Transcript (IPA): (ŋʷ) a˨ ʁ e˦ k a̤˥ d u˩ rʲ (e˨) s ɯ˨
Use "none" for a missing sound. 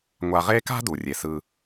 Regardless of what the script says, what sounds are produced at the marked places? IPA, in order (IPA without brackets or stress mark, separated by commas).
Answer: ŋʷ, e˩